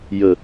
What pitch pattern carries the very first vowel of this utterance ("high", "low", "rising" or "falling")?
low